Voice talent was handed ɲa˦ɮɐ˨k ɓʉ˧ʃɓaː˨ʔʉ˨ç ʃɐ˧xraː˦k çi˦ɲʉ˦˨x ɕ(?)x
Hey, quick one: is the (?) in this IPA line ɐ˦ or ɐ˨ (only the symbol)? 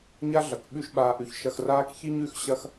ɐ˦